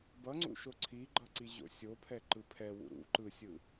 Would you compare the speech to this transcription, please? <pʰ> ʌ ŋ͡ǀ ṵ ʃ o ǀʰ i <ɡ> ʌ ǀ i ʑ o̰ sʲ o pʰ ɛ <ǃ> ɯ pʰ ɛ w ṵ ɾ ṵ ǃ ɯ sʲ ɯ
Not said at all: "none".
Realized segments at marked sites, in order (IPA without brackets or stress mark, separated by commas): b, ɡ͡ǃ, ǃ